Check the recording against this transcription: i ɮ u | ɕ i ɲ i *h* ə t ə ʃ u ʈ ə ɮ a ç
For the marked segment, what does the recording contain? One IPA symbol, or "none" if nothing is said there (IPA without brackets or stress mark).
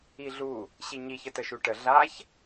ç